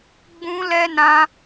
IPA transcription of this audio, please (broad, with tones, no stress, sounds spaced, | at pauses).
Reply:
ɡ͡b ũ˧ l ɛ˧ n ã˧